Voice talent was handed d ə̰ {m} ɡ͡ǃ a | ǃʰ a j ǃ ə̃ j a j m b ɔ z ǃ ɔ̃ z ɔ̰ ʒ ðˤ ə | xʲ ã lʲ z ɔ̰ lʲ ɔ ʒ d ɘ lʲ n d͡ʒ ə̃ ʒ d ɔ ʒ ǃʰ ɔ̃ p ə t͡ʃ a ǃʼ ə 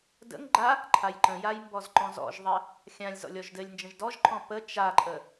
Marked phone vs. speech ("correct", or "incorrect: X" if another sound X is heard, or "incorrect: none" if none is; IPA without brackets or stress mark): incorrect: ŋ